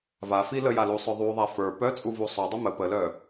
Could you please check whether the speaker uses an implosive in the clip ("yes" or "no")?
no